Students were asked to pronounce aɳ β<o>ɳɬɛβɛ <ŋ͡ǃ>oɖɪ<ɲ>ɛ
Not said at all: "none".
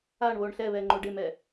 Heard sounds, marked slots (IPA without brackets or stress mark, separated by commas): o, ŋ͡ǃ, m